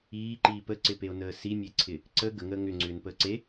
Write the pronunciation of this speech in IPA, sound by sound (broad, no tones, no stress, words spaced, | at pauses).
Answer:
iːǃiː pəǀɪpeo̯nəː simʲeǀʰɪ | ǀə ɡəŋəː ŋʏŋ͡ǀʏːnpəː ǀe